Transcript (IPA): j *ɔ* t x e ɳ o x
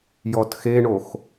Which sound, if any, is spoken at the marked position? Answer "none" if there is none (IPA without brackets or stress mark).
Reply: ɔ